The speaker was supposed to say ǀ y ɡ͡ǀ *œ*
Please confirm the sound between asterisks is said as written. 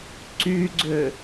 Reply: no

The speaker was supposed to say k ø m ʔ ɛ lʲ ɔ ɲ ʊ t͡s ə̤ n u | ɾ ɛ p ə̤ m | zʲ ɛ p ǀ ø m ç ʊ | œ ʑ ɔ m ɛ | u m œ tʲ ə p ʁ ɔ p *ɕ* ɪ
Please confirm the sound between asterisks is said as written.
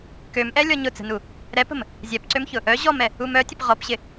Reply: yes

